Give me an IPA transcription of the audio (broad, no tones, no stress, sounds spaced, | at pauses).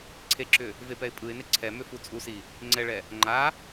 ǀʰ e ǁ ʏ | v e p ɛ ɪ̯ pʼ ɯ ɪ̯ n e ǀʰ ɛ m ʏ f u t͡sʼ u s i | ŋ͡ǀ ɛ ɭ ɛ | ŋ͡ǃ a